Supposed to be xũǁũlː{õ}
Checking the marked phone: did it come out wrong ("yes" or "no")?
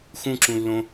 no